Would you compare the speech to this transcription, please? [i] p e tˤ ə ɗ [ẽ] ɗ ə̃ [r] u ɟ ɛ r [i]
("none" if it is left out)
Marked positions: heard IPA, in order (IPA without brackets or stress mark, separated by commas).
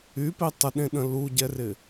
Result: y, ẽ, l, ɪ